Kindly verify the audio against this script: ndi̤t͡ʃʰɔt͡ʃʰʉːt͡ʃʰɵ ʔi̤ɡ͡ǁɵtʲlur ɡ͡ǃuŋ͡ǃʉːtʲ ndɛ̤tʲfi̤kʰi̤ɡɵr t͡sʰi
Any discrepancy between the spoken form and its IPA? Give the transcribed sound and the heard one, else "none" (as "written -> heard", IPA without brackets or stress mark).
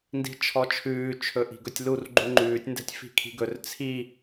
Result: ɡ͡ǁ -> ɡ